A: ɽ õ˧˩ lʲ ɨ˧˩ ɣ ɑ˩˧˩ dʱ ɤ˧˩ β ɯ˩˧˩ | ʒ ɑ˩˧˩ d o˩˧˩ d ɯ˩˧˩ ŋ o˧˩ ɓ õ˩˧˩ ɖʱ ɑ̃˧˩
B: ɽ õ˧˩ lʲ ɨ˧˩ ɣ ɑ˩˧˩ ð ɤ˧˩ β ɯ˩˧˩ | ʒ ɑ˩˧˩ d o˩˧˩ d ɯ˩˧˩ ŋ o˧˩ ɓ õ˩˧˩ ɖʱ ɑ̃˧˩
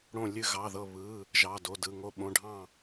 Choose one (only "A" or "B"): B